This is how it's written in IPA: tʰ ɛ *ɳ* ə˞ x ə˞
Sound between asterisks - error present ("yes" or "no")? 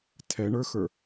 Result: no